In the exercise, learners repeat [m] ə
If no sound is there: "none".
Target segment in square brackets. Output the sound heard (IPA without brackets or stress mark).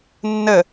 nː